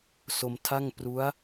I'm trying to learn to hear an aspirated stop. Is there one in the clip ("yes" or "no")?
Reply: yes